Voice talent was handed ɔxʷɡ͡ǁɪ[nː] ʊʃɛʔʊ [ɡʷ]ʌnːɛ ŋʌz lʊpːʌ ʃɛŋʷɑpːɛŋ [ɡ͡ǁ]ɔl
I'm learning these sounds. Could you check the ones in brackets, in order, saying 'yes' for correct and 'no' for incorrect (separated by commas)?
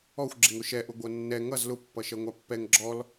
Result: no, yes, yes